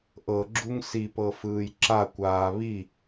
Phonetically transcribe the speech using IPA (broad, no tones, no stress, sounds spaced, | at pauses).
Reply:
ʔ ɤ ɡ͡ǁ u ŋ s i p ɤ f ɯː j ǁ a kʷ aː β i